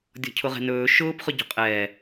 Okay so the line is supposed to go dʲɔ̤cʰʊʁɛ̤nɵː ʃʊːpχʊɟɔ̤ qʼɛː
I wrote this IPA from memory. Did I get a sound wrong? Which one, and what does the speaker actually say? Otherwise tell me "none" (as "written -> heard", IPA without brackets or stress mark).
none